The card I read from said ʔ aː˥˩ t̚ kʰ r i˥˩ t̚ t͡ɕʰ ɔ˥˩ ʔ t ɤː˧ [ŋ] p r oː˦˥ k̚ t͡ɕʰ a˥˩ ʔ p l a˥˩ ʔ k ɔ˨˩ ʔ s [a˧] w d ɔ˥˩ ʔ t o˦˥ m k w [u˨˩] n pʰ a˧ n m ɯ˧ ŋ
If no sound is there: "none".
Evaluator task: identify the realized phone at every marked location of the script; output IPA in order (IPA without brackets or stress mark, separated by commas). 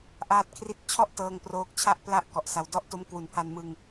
ŋ, a˧, u˨˩